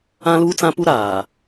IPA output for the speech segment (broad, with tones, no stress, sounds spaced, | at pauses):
ã˦ l uː˦ t͡s ã˦ p u˦ ɾ aː˨